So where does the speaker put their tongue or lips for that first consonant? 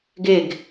velum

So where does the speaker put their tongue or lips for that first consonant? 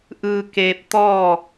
throat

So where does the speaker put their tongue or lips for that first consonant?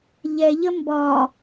palate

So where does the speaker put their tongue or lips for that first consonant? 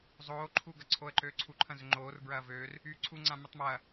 tongue tip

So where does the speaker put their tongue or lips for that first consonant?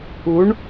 retroflex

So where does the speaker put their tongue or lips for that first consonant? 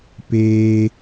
lips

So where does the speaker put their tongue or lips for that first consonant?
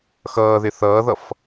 velum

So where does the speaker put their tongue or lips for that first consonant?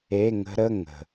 velum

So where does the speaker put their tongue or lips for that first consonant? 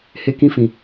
throat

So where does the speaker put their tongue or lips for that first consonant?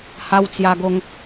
throat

